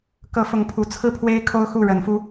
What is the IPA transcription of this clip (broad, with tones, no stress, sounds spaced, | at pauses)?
k ɤ˧˥ f ʊ˧˥ ŋ pʰ u˨˩ t͡sʰ ɹ̩˥˩ pʰ w e˥ ɪ̯ kʰ o˥ ʊ̯ x u˥˩ ɻ ə˧˥ n f u˥